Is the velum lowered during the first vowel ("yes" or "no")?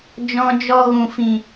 yes